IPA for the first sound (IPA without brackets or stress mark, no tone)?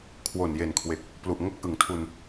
kʰ